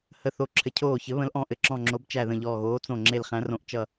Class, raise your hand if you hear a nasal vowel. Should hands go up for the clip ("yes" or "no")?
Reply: yes